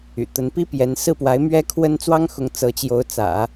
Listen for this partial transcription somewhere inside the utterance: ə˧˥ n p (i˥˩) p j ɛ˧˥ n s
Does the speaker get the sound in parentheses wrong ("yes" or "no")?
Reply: yes